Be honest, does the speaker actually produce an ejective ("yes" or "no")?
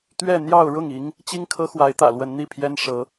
no